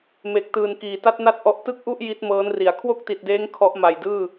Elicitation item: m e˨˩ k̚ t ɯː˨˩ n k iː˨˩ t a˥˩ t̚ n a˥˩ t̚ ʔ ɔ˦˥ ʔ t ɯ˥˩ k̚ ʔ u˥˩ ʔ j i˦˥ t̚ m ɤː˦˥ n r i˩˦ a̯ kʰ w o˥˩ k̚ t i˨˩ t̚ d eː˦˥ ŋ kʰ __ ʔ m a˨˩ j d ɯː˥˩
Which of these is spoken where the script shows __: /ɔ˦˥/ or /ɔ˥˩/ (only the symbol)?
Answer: ɔ˦˥